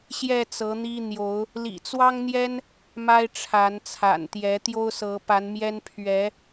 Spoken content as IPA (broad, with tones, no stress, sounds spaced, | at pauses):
ɕ j ɛ˥˨ t͡s ɤ˨˦ n̪ i˦ n̪ j o˨˦ ʊ̯ | l ḭ˨˩ t͡s w ɑ˦ ŋ n̪ j ɛ˦ n | m a˦ ɪ̯ ʈ͡ʂʰ a˨˦ n t͡sʰ a̰˨˩ n t̪ j ɛ˨˦ t̪ j o˦ ʊ̯ s ɤ˨˦ p a˨˦ n m j ɛ˦ n pʰ ɥ ɛ˨˦